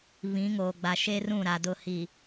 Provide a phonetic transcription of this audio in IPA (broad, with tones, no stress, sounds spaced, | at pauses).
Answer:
β ĩ˨˦ ŋ oː˨ ɡ͡b a˨ ʃ e˦ r ũ˦˨ ɾ a˨ d ʊ˦˨ h i˨